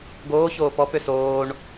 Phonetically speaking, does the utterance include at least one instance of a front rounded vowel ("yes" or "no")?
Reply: yes